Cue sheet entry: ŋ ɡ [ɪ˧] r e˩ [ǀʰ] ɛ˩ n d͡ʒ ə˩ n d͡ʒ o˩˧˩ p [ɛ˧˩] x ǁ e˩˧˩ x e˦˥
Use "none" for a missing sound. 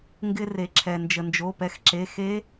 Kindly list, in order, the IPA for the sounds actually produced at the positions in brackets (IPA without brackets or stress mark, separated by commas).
ɪ˧, ǁʰ, ɛ˧˩